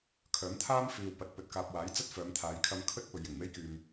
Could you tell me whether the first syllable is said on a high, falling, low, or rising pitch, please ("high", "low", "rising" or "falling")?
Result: rising